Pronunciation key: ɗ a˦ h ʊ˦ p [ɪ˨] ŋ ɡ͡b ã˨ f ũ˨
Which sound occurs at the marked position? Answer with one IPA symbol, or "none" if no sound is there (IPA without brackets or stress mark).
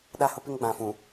ɪ˦